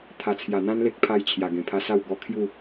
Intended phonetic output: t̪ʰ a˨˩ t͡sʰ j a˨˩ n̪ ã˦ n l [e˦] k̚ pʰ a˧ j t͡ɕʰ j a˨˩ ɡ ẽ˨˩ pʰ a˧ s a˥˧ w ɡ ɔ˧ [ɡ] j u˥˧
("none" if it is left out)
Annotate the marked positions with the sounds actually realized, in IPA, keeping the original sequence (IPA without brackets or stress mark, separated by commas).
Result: e˦, kʰ